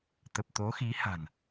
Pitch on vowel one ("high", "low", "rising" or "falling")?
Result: low